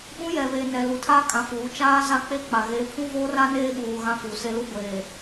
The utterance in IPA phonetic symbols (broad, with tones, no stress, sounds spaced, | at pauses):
ɓ ũ˦ j ɛ˨ β eː˨ n ɛ˨ l u˨ tʰ aː˦ kʼ ã˨ f uː˨˦ t͡ʃ aː˦ z a˦ k͡p e˦ k͡p a˨ ɣ eː˨˦ pʰ ũ˦ v oː˦ r a˦ n eː˦ ɓ uː˨ ɣ ã˦ f u˨ s e˦ l u˦ ɡʷ eː˨